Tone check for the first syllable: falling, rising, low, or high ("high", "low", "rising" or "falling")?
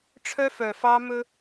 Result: high